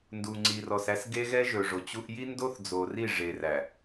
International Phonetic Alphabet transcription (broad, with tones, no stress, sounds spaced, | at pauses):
n d u˨ ŋ͡ǀ i˨ r ɔ˨ s æ˦ s ɡ e˦ ɣ ɛ˦ ʒ ɵ˨ ʐ o˨ t͡ɕ u˦ ʔ j i˦ n d o˦ θ d͡z o˨ r i˦˨ ʐ e˨ r æ˨